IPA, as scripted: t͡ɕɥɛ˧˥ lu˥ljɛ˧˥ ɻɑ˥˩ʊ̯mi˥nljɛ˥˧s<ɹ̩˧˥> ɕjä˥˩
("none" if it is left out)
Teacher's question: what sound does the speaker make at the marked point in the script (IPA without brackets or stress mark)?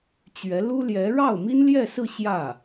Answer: ɹ̩˥˧